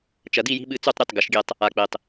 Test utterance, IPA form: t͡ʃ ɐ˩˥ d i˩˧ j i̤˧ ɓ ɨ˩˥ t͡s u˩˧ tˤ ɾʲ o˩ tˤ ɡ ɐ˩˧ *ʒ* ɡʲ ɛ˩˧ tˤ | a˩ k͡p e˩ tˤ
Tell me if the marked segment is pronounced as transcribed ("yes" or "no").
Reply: no